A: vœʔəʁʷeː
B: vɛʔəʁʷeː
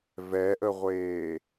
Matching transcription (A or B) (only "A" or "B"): B